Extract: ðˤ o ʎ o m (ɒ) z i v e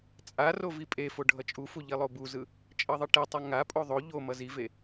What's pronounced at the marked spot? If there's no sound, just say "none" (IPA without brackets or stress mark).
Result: ʌ